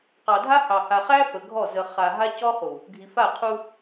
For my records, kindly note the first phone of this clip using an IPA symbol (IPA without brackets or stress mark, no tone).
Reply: q